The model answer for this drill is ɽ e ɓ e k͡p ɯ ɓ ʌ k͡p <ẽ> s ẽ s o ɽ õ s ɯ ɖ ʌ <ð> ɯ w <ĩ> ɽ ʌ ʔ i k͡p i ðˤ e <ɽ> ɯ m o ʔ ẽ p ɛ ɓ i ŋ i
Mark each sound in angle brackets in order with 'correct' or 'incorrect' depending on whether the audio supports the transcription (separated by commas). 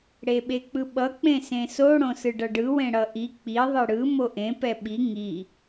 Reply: correct, incorrect, incorrect, correct